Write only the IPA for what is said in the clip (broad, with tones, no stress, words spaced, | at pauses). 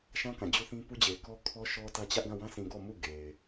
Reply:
ʃã˦kã˨d͡ʑu˦θĩ˦ pu˦d͡ʑe˨ɪ̯kɔ˦ kʰɔ˦ʃɔ˦tä˦t͡ɕä˦ʔ ɡã˦˨wã˦sĩ˨ɡɔ˦˨ mu˦˨ ɡe˨ɪ̯